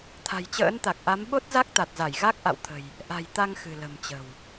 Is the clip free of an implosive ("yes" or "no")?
no